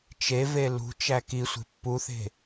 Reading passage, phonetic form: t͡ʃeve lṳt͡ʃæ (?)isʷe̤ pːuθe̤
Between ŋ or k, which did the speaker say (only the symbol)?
k